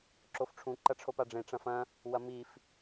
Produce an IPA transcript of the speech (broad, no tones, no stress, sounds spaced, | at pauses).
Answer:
ǁ o f ʈ͡ʂʰ ũ ǃ ɐ ʈ͡ʂʰ o p a ɖ͡ʐ ẽ ʈ͡ʂ ɐ̃ f ɐ̃ | w ɐ m i f